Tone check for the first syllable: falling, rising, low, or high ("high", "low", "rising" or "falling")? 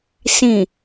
low